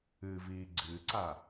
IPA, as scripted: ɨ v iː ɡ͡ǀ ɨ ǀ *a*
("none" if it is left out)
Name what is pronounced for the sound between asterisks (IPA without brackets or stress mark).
a